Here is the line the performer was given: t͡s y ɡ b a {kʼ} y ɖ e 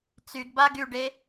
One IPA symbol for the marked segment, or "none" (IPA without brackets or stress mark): ɡ